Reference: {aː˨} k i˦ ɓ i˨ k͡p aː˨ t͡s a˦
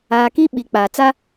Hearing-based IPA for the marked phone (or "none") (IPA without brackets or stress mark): aː˨